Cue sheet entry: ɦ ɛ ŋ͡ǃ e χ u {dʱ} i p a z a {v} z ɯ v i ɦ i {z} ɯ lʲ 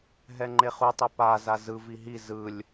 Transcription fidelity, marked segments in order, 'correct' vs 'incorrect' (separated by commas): incorrect, incorrect, correct